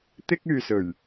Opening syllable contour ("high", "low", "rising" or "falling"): high